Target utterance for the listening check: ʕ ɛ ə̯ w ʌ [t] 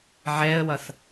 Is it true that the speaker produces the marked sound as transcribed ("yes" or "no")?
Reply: no